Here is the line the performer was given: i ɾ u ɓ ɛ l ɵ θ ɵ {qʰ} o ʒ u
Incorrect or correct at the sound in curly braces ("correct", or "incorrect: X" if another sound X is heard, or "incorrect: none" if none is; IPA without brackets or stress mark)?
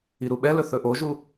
incorrect: ʔ